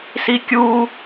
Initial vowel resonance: oral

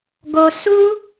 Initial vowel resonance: oral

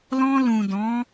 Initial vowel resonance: nasal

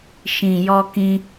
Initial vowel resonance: nasal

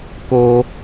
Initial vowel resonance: oral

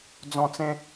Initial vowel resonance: nasal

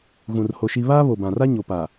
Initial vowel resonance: nasal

